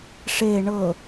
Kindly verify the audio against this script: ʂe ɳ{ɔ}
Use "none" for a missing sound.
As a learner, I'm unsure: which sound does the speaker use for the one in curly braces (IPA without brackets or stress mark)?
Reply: ɤ